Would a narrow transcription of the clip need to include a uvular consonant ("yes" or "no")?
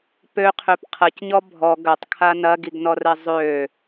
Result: yes